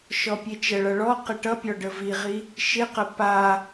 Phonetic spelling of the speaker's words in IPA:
ʃ ɔ pʲ e t͡ʃ ə ɭ ʌ ɭ ɔ q ɪ ʈ ʌ pʲ ɔ ɖ ə v i ʁ i | ʃ ɪ q ə p a

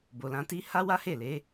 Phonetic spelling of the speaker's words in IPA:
b o˨ l ã˧ t i˦ h a˦ w a˦ h e˦˨ l e˨˦

